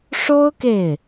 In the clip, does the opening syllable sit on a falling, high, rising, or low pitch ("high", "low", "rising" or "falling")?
high